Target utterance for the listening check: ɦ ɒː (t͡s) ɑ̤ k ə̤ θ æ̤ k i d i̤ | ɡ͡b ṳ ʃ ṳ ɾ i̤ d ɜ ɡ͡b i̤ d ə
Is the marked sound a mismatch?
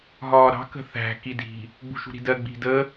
yes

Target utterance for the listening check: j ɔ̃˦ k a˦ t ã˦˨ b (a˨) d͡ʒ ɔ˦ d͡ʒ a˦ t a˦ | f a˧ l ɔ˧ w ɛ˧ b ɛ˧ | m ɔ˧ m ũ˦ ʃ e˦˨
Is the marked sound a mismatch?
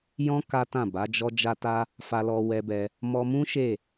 yes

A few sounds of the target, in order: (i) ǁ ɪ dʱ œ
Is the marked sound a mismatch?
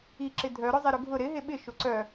no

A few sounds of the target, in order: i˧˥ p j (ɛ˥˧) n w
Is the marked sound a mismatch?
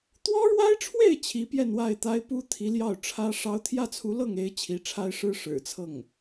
no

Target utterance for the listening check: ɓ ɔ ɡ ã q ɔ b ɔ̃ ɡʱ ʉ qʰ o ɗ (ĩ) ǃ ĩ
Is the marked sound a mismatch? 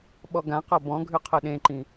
yes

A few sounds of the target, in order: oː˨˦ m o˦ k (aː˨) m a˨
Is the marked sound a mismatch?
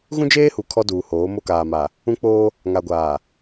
no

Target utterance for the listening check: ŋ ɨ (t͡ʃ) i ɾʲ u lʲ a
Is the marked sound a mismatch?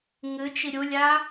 no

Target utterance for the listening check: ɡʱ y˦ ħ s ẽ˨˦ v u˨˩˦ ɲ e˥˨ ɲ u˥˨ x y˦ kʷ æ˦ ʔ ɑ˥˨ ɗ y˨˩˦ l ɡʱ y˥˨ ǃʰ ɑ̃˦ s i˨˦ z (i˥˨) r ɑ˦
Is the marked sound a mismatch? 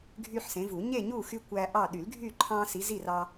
no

